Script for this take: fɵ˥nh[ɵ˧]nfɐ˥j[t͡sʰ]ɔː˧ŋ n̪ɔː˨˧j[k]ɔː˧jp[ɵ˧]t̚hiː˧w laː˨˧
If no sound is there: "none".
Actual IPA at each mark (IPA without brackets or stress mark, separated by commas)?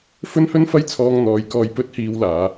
ɵ˥, t͡sʰ, k, ɵ˥